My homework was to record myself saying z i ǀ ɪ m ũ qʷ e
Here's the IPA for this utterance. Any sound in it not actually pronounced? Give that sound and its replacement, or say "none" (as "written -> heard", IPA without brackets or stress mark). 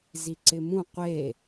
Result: none